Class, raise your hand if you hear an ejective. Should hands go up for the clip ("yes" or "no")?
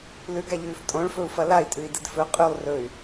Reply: yes